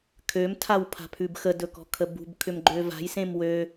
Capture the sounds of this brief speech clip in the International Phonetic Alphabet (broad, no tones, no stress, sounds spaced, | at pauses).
kʰ ø m tʰ a w pʰ a̤ pʰ ʉ b x ə d ɵ k ɔ̤ kʰ ə b ṳ b kʰ ʏ m ɡ͡ǃ ø v a̤ j s ẽ m w ø